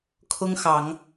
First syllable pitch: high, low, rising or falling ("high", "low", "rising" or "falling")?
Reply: high